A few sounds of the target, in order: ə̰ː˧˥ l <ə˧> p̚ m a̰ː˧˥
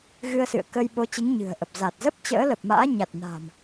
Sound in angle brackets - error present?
yes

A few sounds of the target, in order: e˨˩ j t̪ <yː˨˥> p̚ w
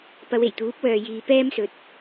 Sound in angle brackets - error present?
yes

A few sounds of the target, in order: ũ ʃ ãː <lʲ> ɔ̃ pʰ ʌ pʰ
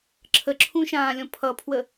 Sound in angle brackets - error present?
no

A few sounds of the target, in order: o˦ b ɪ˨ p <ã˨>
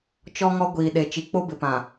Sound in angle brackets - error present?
no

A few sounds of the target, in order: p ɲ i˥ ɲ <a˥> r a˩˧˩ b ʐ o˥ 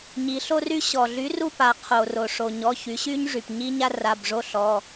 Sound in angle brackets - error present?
no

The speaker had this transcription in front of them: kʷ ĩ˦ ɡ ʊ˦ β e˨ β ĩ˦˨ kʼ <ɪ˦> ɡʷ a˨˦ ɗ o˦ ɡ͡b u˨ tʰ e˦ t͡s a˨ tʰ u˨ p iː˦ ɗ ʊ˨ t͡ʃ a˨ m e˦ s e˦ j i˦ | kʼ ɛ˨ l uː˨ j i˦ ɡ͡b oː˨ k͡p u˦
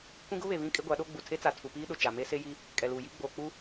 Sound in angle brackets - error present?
no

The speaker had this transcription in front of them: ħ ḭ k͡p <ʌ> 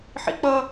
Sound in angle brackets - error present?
no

